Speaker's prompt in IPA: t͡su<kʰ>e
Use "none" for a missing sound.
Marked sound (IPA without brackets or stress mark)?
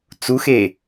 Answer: x